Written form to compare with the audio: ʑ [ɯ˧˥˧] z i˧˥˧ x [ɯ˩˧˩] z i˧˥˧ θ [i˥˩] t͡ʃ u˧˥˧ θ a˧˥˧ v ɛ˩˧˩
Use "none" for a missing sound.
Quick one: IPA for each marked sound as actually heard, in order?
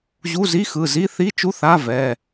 u˧˥˧, ɯ˩˧˩, i˧˥˧

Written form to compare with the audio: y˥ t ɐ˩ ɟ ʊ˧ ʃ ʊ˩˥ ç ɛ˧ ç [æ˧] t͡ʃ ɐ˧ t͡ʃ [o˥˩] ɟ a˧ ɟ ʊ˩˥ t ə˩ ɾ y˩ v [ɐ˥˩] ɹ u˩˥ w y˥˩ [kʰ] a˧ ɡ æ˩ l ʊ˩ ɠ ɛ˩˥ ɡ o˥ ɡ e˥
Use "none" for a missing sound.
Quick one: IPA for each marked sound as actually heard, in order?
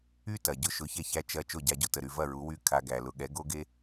æ˧, o˥˩, ɐ˥˩, kʰ

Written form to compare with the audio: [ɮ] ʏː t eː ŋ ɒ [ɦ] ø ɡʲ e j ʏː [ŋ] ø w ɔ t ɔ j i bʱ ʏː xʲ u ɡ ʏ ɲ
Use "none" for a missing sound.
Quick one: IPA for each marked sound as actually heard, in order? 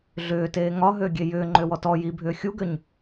ɮ, ɦ, ŋ͡ǃ

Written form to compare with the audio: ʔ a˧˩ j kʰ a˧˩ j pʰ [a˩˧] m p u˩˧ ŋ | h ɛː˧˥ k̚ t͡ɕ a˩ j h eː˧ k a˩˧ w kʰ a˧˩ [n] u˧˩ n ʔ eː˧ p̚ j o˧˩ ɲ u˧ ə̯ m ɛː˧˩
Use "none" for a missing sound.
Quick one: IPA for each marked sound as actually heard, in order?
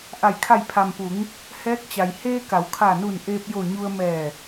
a˩, n

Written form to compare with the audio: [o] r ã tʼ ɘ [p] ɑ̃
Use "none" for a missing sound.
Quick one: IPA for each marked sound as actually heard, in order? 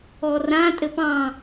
ɔ, p

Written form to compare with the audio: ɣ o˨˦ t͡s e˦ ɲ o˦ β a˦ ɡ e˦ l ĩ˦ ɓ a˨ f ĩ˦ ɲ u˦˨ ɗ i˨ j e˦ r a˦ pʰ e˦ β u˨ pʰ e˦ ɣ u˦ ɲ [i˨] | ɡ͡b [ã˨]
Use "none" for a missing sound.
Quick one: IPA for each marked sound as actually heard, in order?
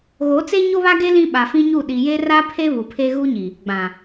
i˨, ã˨

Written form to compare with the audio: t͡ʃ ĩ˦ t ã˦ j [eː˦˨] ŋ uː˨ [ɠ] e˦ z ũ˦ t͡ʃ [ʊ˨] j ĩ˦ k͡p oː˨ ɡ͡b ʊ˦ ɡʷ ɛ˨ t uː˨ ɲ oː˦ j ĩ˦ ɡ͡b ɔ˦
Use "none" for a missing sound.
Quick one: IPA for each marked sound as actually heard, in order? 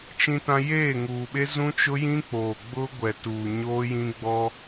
eː˦˨, ɓ, ʊ˦

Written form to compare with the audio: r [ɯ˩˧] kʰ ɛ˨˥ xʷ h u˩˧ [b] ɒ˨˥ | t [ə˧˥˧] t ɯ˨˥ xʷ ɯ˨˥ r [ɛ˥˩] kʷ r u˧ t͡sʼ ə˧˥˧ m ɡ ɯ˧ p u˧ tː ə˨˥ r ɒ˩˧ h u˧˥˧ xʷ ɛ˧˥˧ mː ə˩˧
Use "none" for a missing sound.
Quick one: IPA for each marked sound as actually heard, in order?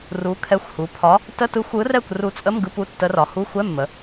u˩˧, pʰ, ə˧˥˧, ɛ˥˩

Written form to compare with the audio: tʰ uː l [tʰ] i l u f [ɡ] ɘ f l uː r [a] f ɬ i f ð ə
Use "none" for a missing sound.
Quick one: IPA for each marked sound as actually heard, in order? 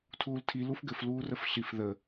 tʰ, ɡ, ə

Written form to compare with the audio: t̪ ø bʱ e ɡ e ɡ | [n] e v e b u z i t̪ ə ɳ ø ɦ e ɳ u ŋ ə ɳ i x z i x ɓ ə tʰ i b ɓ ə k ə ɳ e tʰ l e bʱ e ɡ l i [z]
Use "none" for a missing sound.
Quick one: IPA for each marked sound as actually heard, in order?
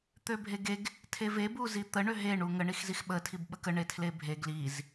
tʰ, z

